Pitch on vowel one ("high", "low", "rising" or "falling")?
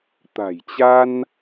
low